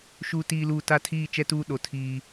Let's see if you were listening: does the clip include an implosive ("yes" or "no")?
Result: yes